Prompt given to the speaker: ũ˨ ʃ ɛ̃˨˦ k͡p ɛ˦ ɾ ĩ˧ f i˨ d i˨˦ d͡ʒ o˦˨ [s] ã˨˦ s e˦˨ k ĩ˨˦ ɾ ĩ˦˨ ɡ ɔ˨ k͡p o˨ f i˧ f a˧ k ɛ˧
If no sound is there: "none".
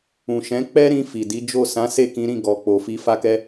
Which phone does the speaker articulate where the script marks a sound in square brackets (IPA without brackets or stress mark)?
s